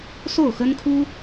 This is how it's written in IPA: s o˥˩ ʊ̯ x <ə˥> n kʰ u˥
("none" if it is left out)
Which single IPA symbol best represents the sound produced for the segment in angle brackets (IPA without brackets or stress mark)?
ə˥